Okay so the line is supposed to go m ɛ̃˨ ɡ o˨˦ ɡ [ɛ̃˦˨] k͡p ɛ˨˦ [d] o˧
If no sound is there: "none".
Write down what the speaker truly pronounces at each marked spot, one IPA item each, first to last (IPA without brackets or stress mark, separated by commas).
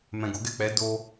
ɛ˦˨, d